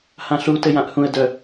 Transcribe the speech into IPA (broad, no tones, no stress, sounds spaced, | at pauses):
h ã ɬ u t ɘ j ã ʔ h ũ ə̯ d œ